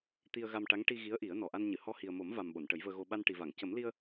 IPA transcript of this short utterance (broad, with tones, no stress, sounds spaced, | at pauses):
t̪ i˧ ə̯ ɣ a˧ m ʈ a˧˥ ŋ ʈ i˧ ɣ i˧˥ ə̯ ʔ i˨˩˦ ə̯ n ɔ˨˩ ʔ a˧ n ɲ ɨ˨˩˨ h ɔ˧ h i˨˩ ə̯ m o˨˩˦ m v a˨˩ m ɓ o˨˩˨ n ʈ ə˨˩˦ j v əː˧ ɣ o˧ ɓ a˧ n ʈ i˨˩ v a˨˩˨ ŋ c ə˨˩˦ m l i˧ ə̯